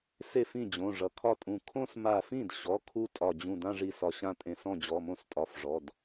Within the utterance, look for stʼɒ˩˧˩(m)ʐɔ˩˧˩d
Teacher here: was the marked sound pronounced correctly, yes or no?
no